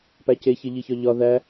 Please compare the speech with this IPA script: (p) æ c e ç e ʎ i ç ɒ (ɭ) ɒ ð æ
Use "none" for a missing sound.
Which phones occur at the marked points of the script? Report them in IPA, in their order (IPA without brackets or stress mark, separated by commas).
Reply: p, ʎ